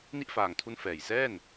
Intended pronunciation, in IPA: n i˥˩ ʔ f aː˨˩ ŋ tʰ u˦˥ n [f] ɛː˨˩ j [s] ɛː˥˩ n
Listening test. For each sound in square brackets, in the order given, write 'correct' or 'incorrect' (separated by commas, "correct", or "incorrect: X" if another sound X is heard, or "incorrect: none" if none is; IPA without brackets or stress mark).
correct, correct